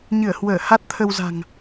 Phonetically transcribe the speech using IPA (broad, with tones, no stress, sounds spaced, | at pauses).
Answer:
ɲ ɨ˧˩ ə̯ h w əː˧˩ h a˦˥ t̚ t̪ʰ ə˧ w z a̤˨˩ ŋ